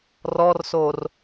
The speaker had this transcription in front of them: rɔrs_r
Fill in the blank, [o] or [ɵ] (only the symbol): o